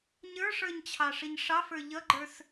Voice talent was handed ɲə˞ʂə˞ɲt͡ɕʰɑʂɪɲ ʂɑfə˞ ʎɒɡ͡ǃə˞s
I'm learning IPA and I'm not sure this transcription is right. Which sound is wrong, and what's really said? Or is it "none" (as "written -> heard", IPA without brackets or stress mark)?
ɒ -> ʌ